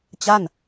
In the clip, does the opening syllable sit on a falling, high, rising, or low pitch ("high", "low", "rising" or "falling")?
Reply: falling